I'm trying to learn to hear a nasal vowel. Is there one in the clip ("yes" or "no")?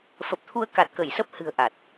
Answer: no